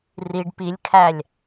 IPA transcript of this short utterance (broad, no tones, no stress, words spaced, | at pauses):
riɖ pilʲkʰælʲ